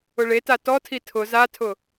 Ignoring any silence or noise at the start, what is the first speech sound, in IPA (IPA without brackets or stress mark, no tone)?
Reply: ʊ